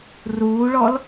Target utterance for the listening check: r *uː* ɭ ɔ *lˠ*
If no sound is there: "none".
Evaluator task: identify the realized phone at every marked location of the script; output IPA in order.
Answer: uː, l

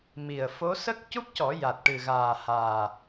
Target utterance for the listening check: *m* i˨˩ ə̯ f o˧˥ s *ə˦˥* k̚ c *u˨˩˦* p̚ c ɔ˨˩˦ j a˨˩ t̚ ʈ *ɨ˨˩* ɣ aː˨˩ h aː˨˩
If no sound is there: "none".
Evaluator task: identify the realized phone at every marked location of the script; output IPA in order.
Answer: m, ə˦˥, u˦˥, ɨ˨˩

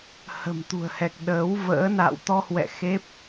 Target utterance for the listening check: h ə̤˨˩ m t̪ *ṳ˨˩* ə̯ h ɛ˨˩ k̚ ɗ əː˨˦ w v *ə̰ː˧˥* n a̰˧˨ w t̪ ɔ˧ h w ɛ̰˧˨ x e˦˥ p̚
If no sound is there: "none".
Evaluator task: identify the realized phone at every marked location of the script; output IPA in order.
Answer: ṳ˨˩, ə̰ː˧˥

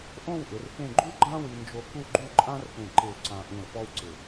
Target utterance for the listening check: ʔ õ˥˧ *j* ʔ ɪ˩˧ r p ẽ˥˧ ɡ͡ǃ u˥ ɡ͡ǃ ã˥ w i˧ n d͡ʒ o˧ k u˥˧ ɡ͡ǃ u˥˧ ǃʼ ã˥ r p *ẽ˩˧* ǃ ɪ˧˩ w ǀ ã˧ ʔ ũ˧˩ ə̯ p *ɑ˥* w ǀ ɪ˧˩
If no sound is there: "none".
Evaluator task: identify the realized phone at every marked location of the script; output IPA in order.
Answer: w, ẽ˧˩, ɔ˥

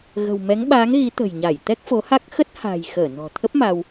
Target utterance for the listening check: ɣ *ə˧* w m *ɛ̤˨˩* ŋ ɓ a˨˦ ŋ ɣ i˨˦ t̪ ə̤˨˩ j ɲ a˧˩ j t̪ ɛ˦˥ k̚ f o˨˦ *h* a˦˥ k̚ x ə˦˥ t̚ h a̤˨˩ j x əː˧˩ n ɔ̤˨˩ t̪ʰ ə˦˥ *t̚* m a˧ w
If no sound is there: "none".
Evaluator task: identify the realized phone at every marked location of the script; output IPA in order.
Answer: ə̤˨˩, ɛ˨˦, h, p̚

